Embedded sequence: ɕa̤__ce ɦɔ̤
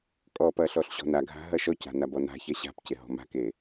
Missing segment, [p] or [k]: p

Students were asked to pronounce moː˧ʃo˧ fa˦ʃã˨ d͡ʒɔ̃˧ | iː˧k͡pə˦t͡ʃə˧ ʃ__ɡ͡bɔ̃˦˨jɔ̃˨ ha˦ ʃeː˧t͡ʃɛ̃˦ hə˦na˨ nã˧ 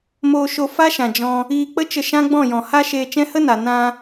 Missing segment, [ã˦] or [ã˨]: ã˦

